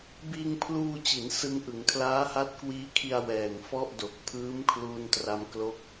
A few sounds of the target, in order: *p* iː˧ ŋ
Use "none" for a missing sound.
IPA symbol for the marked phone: b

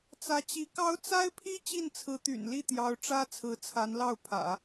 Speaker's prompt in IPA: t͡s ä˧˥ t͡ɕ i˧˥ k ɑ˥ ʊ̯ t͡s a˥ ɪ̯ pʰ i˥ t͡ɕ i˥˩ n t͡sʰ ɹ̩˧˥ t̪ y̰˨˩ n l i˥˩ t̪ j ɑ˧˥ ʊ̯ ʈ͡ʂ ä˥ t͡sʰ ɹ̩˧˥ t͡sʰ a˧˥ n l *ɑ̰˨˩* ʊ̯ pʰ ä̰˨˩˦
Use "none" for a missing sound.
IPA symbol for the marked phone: ɑ˥˩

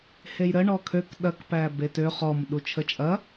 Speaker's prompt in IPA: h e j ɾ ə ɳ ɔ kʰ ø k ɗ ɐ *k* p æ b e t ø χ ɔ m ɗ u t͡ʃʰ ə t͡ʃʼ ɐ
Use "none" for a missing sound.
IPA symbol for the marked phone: k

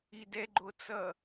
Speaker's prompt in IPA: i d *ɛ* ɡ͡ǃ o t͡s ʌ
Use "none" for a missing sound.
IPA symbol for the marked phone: ɛ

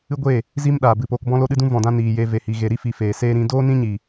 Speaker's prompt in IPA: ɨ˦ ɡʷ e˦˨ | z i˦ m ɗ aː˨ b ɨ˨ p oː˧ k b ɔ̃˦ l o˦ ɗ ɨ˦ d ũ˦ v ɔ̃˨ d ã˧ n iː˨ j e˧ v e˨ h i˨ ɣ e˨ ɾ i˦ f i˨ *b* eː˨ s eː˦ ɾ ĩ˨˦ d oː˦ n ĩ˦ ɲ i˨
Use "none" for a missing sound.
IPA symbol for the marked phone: f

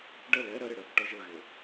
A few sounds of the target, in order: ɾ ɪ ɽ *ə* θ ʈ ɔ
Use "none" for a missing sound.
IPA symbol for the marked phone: ə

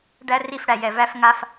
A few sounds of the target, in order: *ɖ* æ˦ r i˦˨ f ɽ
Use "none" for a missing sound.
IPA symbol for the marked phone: ɖ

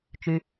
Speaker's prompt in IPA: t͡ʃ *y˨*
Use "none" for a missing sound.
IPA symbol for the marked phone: y˨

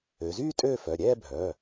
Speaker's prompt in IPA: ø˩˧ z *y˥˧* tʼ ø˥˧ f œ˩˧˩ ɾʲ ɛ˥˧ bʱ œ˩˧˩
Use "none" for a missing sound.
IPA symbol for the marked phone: y˥˧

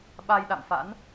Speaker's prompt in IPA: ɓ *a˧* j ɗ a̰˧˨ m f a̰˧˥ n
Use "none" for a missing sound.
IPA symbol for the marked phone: a˧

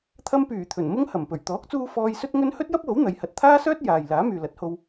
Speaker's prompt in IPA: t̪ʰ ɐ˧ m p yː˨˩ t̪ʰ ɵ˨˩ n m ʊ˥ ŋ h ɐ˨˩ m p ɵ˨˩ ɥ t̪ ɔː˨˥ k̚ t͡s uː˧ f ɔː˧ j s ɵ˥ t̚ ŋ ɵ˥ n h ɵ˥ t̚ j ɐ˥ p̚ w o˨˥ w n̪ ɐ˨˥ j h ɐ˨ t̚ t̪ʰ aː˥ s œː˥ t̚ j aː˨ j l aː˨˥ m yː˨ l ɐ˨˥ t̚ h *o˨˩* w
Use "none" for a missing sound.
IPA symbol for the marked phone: o˧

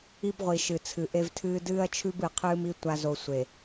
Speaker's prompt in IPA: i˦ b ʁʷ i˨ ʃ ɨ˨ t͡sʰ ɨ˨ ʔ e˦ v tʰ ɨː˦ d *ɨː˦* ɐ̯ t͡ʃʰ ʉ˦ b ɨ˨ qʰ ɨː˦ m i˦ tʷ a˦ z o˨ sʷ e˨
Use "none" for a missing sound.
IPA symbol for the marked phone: ɨː˦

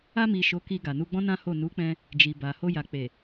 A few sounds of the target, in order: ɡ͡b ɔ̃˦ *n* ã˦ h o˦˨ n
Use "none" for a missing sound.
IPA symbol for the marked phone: n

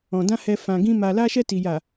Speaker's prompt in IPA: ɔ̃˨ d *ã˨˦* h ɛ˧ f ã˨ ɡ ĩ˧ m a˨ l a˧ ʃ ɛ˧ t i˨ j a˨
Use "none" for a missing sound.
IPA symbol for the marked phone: ã˧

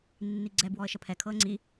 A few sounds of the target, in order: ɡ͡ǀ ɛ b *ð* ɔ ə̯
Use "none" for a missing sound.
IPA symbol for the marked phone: w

